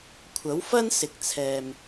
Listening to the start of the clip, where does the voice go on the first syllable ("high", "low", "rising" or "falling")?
rising